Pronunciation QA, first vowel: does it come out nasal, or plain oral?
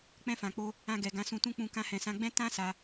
nasal